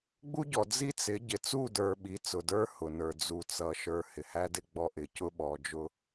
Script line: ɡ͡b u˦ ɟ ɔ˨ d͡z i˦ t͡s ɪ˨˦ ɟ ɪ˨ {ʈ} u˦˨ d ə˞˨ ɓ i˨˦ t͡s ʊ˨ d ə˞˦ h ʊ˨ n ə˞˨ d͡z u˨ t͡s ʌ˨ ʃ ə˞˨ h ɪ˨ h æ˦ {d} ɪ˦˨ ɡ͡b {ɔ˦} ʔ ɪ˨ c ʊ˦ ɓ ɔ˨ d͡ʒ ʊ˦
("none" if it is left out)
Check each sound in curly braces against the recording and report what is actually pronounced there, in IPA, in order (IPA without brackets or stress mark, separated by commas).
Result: t͡s, d, ɔ˦